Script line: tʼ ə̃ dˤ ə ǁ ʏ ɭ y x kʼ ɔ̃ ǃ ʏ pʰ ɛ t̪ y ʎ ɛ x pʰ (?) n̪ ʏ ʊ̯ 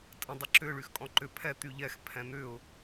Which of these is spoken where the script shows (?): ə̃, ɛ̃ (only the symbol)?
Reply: ɛ̃